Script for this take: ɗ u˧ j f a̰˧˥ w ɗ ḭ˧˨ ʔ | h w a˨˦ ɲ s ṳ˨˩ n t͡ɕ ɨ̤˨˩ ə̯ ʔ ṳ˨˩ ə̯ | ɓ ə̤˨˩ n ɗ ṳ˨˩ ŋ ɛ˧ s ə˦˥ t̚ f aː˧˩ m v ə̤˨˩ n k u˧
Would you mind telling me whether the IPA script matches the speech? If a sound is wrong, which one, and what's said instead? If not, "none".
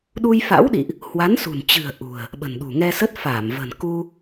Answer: ɲ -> n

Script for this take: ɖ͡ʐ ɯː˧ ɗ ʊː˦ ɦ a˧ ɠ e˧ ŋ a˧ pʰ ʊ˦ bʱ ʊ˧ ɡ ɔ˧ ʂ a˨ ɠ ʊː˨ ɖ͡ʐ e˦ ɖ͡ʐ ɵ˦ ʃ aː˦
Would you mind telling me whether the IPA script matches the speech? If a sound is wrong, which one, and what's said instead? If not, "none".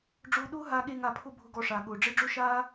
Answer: ɯː˧ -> ʊː˧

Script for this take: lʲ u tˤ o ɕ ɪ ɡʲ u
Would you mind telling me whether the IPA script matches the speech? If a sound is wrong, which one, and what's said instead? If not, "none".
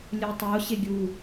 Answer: none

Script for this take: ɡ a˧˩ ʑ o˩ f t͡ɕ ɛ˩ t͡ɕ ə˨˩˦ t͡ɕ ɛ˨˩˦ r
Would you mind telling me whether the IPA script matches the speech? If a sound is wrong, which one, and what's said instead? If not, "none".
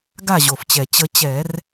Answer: none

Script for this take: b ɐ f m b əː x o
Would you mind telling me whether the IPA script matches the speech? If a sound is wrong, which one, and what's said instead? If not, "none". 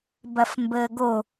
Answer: x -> ɡ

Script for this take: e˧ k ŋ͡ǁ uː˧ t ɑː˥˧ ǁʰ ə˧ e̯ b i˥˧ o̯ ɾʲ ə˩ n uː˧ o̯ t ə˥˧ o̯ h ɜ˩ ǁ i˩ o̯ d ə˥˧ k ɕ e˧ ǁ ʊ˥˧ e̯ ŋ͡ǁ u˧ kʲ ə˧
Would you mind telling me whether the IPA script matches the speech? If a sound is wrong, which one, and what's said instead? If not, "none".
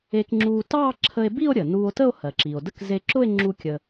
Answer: ɕ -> z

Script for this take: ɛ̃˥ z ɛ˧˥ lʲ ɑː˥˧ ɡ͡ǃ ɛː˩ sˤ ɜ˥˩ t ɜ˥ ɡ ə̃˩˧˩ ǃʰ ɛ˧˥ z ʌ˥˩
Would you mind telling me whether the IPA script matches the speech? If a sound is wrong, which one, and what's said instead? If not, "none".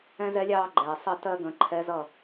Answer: none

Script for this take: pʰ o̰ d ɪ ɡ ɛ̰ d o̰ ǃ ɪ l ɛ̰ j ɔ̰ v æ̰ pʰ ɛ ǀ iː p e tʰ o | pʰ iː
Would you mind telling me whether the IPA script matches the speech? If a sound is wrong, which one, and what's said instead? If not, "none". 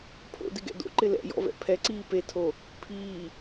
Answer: æ̰ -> ɛ̰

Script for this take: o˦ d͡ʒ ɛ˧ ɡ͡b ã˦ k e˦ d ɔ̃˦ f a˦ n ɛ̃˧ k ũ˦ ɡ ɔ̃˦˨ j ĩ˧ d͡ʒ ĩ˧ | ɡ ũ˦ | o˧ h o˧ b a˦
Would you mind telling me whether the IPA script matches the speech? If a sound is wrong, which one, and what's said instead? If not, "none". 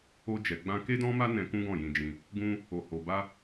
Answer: f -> m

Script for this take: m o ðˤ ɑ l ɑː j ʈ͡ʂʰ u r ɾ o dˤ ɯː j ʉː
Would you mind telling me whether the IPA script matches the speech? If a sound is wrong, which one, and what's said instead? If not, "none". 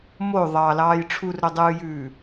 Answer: none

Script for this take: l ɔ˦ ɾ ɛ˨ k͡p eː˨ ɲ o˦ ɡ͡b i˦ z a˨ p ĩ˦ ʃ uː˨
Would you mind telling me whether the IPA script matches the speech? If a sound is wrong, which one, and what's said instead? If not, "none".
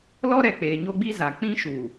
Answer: p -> k͡p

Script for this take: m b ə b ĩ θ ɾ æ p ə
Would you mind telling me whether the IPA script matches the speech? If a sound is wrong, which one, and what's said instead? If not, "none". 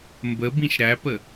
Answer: θ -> ʃ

